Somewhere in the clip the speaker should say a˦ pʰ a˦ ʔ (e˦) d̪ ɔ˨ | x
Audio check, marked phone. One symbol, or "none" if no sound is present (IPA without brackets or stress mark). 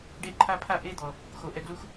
e˦